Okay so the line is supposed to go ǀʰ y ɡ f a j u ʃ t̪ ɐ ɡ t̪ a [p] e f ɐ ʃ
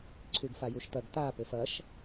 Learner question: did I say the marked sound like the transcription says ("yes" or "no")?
yes